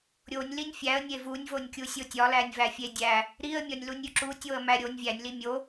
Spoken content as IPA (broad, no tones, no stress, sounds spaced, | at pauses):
ɾʲ o nʲ l i nʲ fʲ æ ə̯ nʲ e v u nʲ v o nʲ kʲ u sʲ o tʲ ɒ l æ nʲ v æ fʲ e dʲ æ | ɾ i ə̯ mʲ ɒ nʲ l u nʲ ɾʲ u ǁ u tʲ o ə̯ m æ ɾʲ o nʲ vʲ æ nʲ l i mʲ o